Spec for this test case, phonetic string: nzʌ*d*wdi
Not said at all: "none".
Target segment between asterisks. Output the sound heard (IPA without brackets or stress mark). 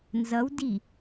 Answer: none